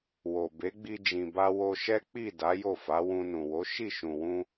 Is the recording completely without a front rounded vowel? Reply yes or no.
yes